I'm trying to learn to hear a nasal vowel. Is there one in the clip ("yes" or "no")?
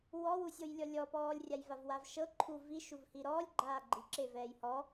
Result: no